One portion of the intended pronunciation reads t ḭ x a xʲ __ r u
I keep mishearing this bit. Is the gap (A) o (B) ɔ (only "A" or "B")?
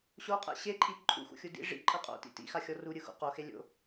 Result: B